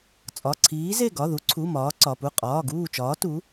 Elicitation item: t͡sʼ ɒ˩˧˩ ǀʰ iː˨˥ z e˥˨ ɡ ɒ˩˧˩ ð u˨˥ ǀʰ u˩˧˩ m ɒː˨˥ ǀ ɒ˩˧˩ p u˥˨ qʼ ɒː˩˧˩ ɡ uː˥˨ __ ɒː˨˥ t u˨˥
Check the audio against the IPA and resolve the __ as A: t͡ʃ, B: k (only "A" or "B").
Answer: A